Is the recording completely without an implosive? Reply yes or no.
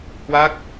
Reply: yes